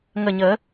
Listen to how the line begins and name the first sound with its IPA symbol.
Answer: ŋ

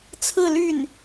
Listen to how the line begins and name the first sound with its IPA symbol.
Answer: t͡sʰ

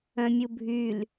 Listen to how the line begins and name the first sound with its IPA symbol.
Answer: œ̃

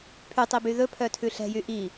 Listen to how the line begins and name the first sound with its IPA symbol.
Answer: pʰ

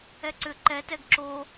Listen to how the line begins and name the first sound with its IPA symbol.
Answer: ɛ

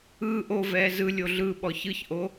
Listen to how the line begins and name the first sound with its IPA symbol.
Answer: ɯː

